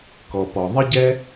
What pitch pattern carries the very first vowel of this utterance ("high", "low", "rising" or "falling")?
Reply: low